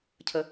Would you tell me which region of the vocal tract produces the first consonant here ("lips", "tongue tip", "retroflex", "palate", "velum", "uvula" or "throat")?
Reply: palate